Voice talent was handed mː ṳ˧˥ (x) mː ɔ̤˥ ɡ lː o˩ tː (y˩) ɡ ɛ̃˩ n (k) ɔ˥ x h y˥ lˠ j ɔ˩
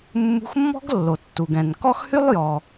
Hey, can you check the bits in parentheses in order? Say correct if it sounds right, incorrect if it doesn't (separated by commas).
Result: correct, incorrect, correct